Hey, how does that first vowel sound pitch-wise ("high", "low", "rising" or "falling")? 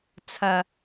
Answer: low